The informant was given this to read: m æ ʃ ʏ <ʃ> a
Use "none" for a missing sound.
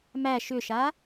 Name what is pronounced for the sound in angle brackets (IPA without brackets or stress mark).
ʃ